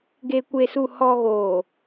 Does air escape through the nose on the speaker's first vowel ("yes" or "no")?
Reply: no